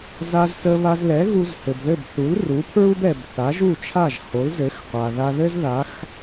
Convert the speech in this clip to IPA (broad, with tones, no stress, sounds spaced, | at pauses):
z a˧ z t ə˧ β a˧ z l ɛ˩˥ ɣ u˧ z h ɘ˩ b ð ɘ˥˩ b θ u˩˥ l r u˩˥ pʰ ɹ u˥ b ɛ˩ b θ a˩˥ ʒ u˥˩ t͡ʃʰ a˥˩ ʒ h o˩˥ l z ɘ˩˥ x qʷ a˩ ð a˧ ð ɘ˥ z ð a˩˥ x